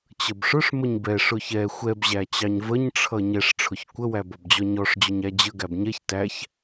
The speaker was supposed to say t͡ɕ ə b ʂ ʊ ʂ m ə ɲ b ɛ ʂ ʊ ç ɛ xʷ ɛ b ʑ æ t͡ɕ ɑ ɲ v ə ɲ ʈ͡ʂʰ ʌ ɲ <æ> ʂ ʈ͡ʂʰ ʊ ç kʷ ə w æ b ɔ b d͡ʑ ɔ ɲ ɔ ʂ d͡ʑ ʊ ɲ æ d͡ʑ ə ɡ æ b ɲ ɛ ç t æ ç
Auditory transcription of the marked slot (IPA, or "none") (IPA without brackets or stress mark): ɛ